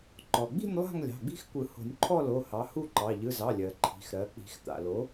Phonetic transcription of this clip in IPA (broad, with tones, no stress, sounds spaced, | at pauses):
ǃ ɔ˩ ɡ͡b i̤˥˨ nʲ lˠ a̤˥˨ ŋ lʲ ɑ̤˩˧˩ ɡ͡b i̤˦ x kʷ ɯ˨˩˦ h o̤˨˩˦ nʲ ǃʰ ɔ˥˨ l o˩˧˩ h ɑ˩˥ h u˥˨ ǃ ɑ˩˧˩ ʎ ɯ˩˧˩ z ɑ˩˧˩ lʲ ɜ˩ ǃʰ i̤˩˧˩ x ɾ ɜ˩˥ k͡p i̤˨˩˦ x t̪ a̰˩ l o˩˥